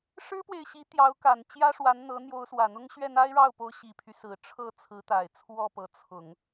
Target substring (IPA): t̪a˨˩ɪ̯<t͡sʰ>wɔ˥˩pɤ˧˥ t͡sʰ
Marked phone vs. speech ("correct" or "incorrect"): correct